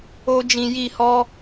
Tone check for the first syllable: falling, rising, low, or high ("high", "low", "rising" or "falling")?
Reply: high